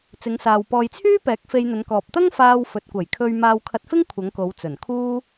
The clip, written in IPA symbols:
t͡s ɪ˨˧ ŋ s aː˨ w p ɔː˨ j t͡sʰ yː˥ p ɛː˨˥ k̚ f e˧ j n̪ ɵ˨˧ n k ɔː˨ p̚ t̪ ɐ˥ ŋ f aː˧ w f ɵ˨ t̚ kʷ ɐ˨˩ j kʰ ɵ˧ ɥ m aː˧ w kʰ ɐ˧ t̚ f ɪ˥ ŋ kʷʰ ɐ˨˧ ŋ k o˨˧ w t͡s ɵ˨˩ n kʰ uː˥

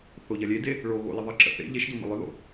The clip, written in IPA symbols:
θ o ʎ ɐ lʲ e d e | ɭ o ɣ o̰ l ɪ ðˤ ə ǁ ə̰ θ ḛ ʎ e ʃ d o m ə̰ lˠ ʏ ð o̰

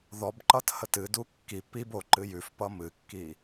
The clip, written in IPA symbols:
ð ɔ b ǃ ʌ t h ə t ɨ d u kː i p i b o ǃ ɨ j ʉ f p ʌ m ɨ kː i

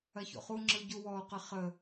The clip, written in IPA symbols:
ɐ ç o̰ χ u ŋ͡ǁ ɯ ɟ u w ɔ q ə χ ə

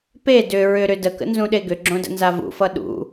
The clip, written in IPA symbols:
p e d ʏ ɹ ʏ ɾ ʏ d ə k ə̰ n z ũ ɗ e ɡ ʏ ɡ͡ǁ õ d ə̰ n z a v ṵ f ʌ ɗ ṵ

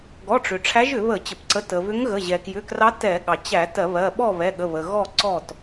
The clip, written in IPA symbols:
ɡ ɔ˩˧˩ ʈ͡ʂ ʏ˩ ʈ͡ʂʰ æ˧˥ ʒ ʏ˧˩˧ β ə˧˩˧ t͡ɕ ə˩ p ǀ ə˩˧˩ t ə˩ β ʏ˧˥ ŋ ɣ ə˩˧˩ ʑ ɛ˩ k j ʏ˩˧˩ k r ɑ˧˥ t ɛ˧˩˧ ɠ ɑ˩ t͡ɕ æ˧˩˧ t ɜ˧˩˧ β ɜ˩˧˩ ɓ ɔ˥˨ β ɛ˩˧˩ ɠ ə˩˧˩ β ə˩ ɣ ɔ˥˨ ǀ ɔ˥˨ t

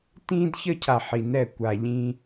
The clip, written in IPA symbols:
t ĩ˦ d ç ə˦ cʰ a˨ ħ i˨ n ɛ˦˨ kʷ a˨ ʎ ĩ˦

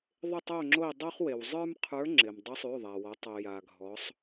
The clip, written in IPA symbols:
ðˤ ɪ˦˨ tˤ o˦˨ ŋ͡ǁ o˦˨ i̯ dˤ o˥ χ w e˩ w zˤ ə˞˥ m qʰ ə˞˧˥ ŋ͡ǁ ɪ˩ m dˤ ɵ˧˥ sˤ ʉ˩˧˩ ðˤ a˩ w ɔ˩˧ tˤ ɵ˩ j a˩ ɡʱ ɔ˩˧ sˤ

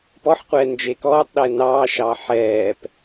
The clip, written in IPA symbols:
p ɔ ħ qʷ ɛː n d͡ʒ e k ɔː tˤ ɗ ɛ n ɑː ʃ ɑ ħ ɛː p

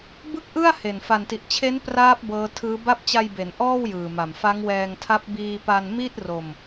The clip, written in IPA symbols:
b ɯ˥˩ k̚ ʔ ɯ˥˩ a̯ h e˨˩ n f a˨˩ n t i˨˩ ʔ t͡ɕʰ e˦˥ n p r aː˦˥ p̚ b ɤː˦˥ tʰ ɯː˦˥ b a˥˩ p̚ t͡ɕ a˧ j b e˩˦ n ʔ ɔː˥˩ w j ɯː˨˩ m a˨˩ m f a˦˥ ŋ w ɛː˧ ŋ tʰ a˦˥ p̚ b iː˧ p a˧ n m i˥˩ t̚ r o˧ m

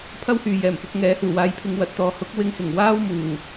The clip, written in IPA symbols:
pʰ ɐ˥ w h yː˨ j ɛː˨˩ m f ʊ˧ k̚ ŋ ɛː˨˥ h uː˨˩ w aː˧ j pʰ ɪ˧ ŋ w ɐ˨˥ t̚ t̪ ɔː˨ h ʊ˨˥ k̚ w ɪ˧ ŋ h ɪ˨˩ ŋ w aː˥ w m uː˨˩

